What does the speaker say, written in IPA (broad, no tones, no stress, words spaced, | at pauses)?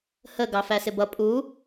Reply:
hə ɡɑfæsɪbʌ pʼu